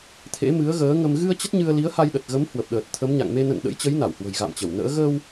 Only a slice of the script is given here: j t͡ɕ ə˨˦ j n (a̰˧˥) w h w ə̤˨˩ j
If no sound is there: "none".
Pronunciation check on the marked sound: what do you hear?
a˧˩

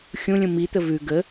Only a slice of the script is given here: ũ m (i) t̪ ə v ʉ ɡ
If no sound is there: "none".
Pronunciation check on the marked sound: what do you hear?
i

